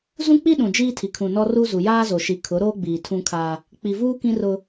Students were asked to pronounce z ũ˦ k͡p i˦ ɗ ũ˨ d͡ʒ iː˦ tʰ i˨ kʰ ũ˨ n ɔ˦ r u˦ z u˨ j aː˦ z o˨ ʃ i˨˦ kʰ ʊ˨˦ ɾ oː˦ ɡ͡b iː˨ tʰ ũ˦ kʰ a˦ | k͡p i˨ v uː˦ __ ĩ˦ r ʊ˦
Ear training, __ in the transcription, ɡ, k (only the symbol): k